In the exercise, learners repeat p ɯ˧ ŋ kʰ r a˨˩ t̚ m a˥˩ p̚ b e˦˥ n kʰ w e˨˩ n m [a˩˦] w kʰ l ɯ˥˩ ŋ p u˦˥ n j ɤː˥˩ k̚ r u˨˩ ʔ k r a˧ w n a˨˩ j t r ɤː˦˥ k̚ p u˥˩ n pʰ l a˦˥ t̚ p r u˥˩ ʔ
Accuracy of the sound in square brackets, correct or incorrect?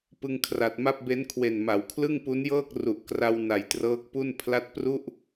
correct